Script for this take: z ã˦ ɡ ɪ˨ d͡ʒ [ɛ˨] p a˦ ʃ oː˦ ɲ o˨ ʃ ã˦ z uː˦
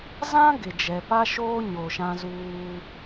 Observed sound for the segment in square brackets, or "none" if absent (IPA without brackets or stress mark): ɛ˨